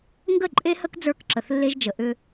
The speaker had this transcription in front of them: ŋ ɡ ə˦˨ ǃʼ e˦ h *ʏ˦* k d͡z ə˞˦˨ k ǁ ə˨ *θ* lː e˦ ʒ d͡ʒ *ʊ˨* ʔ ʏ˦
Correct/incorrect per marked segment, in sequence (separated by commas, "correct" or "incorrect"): incorrect, correct, incorrect